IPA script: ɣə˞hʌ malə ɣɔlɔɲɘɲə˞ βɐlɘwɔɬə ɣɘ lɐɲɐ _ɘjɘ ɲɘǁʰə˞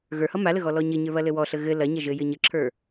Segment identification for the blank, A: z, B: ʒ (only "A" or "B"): B